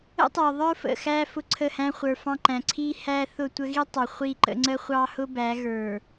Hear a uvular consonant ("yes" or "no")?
yes